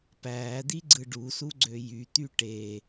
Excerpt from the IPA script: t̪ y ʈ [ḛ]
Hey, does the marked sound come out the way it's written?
no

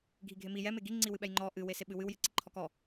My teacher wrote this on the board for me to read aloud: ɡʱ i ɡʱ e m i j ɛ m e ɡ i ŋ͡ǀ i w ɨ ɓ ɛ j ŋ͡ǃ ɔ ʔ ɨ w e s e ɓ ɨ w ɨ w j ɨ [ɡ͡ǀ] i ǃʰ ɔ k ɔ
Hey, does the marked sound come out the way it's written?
no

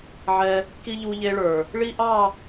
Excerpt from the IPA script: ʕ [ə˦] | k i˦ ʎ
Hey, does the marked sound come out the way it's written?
no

